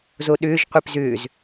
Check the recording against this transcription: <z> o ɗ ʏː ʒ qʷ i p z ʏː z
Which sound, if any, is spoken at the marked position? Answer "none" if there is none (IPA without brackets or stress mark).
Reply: z